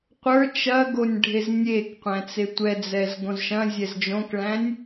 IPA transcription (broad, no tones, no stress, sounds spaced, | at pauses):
qʷ ə˞ t͡ʃ ɐ ɡ o nʲ ɖʱ e z nʲ e k qʷ æ̃ t͡s e tʷ ɛ d͡z ɛ z ɡ õ z ʃ ɐ̃ zʲ ɛ z d͡ʒ õ k ɭ æ̃ nʲ